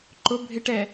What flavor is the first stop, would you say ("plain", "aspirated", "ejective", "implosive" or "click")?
click